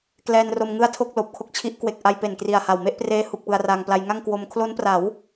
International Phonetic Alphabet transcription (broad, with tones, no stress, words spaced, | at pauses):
klɛː˧nro˧m ŋɯ˥˩a̯tʰo˥˩k̚loː˨˩p̚kʰo˦˥k̚ t͡ɕʰi˦˥ʔkwe˨˩k̚ʔa˧j pe˨˩nkri˨˩a̯ha˨˩w me˥˩ʔ preː˧hu˨˩k̚ pɯ˧a̯raː˧ŋpla˦˥j ŋa˥˩ŋkwo˧m kʰlo˦˥npra˩˦w